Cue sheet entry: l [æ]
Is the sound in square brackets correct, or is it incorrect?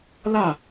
incorrect